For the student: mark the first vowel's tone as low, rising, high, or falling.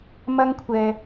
high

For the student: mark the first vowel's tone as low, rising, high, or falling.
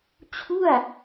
falling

